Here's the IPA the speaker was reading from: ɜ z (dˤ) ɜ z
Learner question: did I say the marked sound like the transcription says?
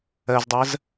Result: yes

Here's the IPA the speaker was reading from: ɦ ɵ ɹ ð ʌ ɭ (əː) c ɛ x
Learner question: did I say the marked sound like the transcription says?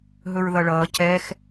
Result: no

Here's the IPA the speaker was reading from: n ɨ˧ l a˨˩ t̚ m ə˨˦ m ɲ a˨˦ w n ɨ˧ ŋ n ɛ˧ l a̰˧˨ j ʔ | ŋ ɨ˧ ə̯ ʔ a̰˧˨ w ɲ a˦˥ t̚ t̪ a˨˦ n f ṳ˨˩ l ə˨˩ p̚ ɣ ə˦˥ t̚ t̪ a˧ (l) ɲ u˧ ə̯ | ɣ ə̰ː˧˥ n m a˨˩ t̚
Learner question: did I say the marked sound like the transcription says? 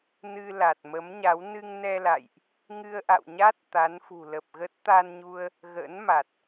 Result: no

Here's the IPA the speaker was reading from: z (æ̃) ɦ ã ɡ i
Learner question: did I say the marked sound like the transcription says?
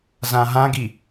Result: no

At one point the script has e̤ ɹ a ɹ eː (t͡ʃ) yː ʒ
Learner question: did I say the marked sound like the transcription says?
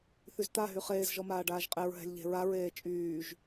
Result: no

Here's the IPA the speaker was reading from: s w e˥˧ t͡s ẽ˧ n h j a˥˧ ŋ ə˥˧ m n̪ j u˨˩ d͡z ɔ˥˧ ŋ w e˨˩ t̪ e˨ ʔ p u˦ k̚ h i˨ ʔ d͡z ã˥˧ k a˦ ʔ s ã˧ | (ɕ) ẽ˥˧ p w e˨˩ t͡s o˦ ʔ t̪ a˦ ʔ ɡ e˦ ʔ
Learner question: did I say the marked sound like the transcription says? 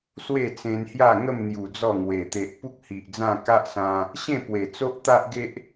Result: yes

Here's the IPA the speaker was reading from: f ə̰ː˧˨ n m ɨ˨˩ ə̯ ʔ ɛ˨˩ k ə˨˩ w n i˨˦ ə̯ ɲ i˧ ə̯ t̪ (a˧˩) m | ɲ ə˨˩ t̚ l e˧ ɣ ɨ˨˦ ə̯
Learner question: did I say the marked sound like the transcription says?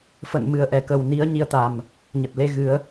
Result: no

